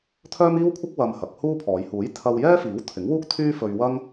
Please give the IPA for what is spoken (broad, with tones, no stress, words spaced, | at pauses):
t̪ʰœː˥miː˥wkʷʰɐ˥k̚ wɐ˧mhɐ˨˥k̚huː˥pʰɔː˨˧j huː˨˥jt̪ʰɐ˧wjɛː˥fiː˨˥w t̪ʰɪ˨˥ŋwuː˥k̚t̪ʰyː˥fɵ˧ɥ wɐ˥ŋ